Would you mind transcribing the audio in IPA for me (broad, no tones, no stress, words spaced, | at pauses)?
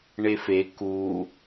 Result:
ɳefe ku